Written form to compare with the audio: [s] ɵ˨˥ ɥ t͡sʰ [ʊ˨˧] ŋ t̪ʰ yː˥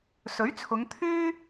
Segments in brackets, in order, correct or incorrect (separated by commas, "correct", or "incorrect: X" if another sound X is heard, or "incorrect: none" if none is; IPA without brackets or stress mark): correct, correct